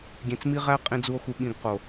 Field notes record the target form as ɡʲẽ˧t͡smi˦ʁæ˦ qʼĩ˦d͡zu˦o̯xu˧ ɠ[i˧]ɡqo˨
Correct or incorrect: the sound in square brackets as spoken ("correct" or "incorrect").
incorrect